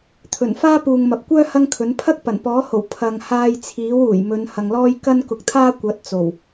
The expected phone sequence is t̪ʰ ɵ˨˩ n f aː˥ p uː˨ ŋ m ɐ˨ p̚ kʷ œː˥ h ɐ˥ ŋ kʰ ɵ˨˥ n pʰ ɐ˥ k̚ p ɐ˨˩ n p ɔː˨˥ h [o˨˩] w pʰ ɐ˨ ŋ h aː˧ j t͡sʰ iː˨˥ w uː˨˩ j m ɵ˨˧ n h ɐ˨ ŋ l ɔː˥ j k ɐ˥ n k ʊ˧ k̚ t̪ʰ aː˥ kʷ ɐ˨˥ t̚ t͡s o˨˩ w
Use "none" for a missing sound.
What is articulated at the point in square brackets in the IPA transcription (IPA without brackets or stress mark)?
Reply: o˨˩